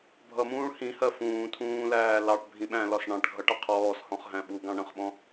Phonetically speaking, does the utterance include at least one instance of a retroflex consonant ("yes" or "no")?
yes